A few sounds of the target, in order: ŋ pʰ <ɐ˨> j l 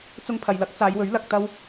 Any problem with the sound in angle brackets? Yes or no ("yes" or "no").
no